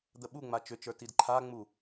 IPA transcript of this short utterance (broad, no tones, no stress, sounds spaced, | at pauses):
d̪ ə ɓ u ŋ͡m a t͡ʃ ʏ t͡ʃ ə˞ t i d ǃʰ a ŋ͡m u